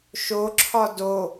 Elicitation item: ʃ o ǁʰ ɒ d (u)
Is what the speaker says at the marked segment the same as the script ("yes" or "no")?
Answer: no